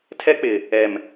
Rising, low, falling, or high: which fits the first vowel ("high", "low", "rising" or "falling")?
high